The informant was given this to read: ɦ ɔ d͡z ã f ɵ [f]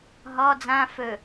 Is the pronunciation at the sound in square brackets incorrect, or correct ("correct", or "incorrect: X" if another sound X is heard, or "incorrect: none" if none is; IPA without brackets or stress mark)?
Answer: incorrect: none